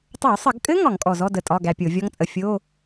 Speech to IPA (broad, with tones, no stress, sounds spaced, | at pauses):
tˤ o˧˩˧ sˤ ə˧˩˧ ɡ kʼ ɘ˦˥ ŋ ɒ˧˩˧ ŋ kʼ ɔ˨˩ z ɔ˧˥˧ d ə˧ tʼ ɒ˧˥˧ ɡ æ˧ pʲ o˧˩˧ vʲ ɔ˦˥ ŋ t͡sʼ ə˧ fʲ o˧˥˧